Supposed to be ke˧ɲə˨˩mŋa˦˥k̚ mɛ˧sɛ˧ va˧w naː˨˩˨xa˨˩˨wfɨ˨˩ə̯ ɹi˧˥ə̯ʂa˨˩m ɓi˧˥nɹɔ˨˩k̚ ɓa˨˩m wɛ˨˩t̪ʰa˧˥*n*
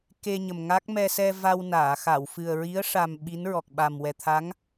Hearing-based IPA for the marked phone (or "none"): ŋ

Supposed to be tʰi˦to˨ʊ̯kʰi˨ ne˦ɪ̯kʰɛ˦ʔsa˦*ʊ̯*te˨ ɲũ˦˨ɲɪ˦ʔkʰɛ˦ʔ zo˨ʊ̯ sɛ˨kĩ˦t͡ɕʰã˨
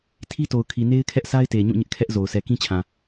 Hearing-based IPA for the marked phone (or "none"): ɪ̯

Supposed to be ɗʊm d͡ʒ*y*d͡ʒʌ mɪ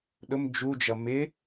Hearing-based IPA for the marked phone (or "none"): u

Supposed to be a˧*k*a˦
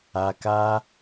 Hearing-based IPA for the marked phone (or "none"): k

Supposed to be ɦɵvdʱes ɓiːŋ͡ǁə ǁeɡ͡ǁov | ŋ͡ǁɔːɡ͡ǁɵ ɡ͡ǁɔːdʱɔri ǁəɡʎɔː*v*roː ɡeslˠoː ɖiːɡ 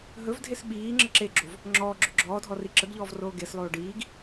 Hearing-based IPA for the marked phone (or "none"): v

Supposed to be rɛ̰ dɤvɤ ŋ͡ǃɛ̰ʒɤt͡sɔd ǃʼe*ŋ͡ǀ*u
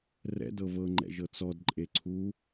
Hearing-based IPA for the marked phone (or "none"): ǀʰ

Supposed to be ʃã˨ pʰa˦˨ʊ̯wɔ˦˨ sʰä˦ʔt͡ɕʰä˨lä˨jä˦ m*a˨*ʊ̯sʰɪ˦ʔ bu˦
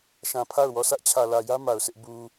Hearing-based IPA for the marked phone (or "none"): a˨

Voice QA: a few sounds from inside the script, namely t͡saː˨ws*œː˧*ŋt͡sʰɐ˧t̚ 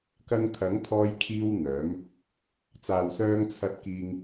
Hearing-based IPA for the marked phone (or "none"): œː˧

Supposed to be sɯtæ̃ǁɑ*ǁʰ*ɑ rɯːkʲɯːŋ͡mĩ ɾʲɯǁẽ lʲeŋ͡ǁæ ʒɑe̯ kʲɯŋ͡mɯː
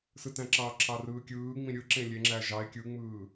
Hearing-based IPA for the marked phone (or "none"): ǁʰ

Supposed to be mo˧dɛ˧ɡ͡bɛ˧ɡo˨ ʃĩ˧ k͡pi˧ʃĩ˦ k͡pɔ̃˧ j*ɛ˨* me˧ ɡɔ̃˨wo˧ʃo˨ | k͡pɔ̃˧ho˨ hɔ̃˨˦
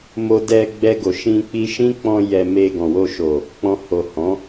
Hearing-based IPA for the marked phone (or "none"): ɛ˧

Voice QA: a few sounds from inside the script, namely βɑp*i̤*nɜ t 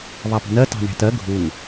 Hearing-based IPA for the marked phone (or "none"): i̤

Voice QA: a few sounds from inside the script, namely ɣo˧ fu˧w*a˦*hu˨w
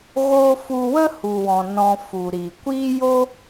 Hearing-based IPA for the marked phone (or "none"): ə˦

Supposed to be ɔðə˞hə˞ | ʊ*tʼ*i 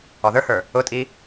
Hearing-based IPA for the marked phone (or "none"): tʼ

